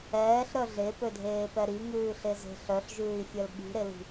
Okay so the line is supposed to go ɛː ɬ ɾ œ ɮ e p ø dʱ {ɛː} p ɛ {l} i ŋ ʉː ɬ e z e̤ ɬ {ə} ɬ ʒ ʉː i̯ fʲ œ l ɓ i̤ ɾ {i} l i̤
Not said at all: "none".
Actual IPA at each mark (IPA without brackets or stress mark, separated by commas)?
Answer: eː, ɾ, œ, e